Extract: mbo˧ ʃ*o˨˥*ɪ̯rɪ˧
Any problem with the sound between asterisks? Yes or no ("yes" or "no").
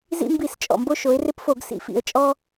yes